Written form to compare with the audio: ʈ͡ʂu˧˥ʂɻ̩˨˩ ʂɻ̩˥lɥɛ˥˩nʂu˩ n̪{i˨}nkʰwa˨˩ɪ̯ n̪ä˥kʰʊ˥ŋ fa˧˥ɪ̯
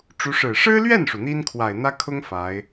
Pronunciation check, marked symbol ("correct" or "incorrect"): incorrect